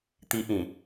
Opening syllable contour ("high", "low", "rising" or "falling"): high